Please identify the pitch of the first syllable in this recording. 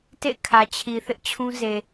falling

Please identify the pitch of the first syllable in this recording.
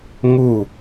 falling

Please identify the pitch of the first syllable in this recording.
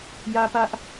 high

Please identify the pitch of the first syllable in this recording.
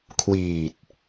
low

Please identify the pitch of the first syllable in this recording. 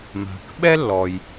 low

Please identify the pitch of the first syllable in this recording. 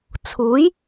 rising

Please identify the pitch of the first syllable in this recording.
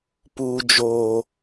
high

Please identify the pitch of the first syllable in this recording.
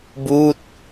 falling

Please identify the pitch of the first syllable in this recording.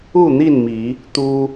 falling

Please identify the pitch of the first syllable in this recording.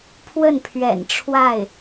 falling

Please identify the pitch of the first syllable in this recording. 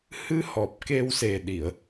rising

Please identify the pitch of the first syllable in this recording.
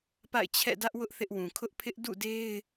falling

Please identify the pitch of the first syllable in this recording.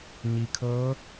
low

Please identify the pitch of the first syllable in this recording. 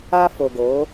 high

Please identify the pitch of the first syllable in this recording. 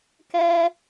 high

